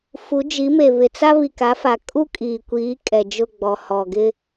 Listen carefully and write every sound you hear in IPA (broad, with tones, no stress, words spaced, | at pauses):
fu˨˦d͡ʒi˨˦me˨ βɪ˨t͡sa˦ βi˨ka˨˦fa˨ kʼu˦kʼiː˨kʷiː˨˦ kʼɛ˨d͡ʒʊ˦˨ɡ͡bɔ˨ hɔ˨ ɡɪ˦